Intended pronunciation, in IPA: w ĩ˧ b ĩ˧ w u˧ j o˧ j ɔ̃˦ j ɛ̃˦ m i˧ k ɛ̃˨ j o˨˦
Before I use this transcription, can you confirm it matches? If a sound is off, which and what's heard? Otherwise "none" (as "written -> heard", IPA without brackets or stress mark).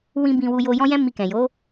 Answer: none